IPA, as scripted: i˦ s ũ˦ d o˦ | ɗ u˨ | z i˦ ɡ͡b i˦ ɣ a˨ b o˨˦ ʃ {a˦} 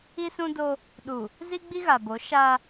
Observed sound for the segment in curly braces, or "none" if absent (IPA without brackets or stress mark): a˦